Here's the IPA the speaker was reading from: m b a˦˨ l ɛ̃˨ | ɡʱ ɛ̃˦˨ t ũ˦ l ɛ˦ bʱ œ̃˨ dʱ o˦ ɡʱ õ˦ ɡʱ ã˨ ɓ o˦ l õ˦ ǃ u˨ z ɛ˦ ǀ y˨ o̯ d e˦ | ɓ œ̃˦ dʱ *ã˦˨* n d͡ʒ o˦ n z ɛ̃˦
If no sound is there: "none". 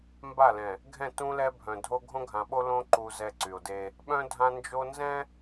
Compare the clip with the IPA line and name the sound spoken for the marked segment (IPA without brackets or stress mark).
ã˦